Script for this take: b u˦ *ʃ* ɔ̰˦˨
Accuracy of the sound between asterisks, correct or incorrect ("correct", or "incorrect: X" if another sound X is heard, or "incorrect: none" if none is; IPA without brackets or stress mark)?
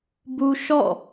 correct